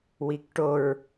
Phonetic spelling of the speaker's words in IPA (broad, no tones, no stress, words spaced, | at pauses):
wikʈoɹ